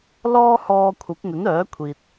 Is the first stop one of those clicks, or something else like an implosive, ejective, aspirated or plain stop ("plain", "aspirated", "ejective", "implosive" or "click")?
aspirated